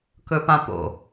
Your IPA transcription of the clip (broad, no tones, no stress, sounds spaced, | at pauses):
k ɵ p ã p o̰